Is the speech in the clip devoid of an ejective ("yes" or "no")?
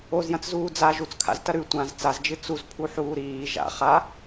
yes